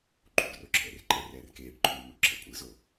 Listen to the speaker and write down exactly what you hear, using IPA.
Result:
ǃʼ ṵ ɖ r o ǁʰ ɛ̰ r ǃʼ ɛ r ɛː r k eː ɖ ǃʰ uː m o ɖ ǁʰ ɛ̰ kʷʼ ɯ z o

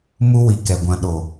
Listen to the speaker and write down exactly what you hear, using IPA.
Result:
m u˦ w i˨ k ɛ˨ ɡʷ ã˨ ɗ o˨

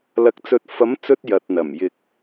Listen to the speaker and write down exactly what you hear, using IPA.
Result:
l ɐ˨ k̚ t͡s ɵ˨ t̚ f ɐ˨˥ m t͡s ɵ˧ t̚ j ɐ˨ t̚ n̪ ɐ˨˩ m j ɪ˨ k̚

